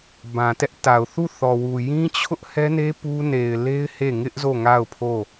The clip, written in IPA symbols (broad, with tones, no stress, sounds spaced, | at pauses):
b ã˨ t ɛ˦ ʔ t a˨ ʊ̯ θ u˦˨ θ ɔ˨ w u˨ j ĩ˦ t͡ɕʰ ʊ˦ ʔ h ɛ˦ n e˦ p u˦ n e˨ ɪ̯ l e˦ ɪ̯ h e˦˨ ŋ ɪ˦ ʔ z o˦˨ ŋ a˦˨ ʊ̯ pʰ o˦˨